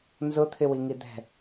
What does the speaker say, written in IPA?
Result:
n z ʊ t̪ʰ ɪ w i ŋ i d̪ ɛ̤

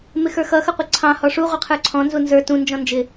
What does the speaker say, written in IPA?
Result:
m ɪ x ə˞ x ʌ x ʌ qʷ ʌ ǀʰ ɑ̃ h ɔ ʂ u ʁʷ ʌ qʰ ə˞ ǀʰ ɔ̃ n z u n z ə˞ t ũ n d͡ʒ ɔ̃ n d͡ʒ ɪ

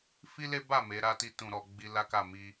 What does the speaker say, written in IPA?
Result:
f i˦ l e˦ b a˦˨ m e˨˦ ɾ a˦ t i˧ t ũ˨ ɾ ɔ˨ ɡ͡b i˧ l a˦ k a˦˨ m i˧

